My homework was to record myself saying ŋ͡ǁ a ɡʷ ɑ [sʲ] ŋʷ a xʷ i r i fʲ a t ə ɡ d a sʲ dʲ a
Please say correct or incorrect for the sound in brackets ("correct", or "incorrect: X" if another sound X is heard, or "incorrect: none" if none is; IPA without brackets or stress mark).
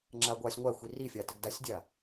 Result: correct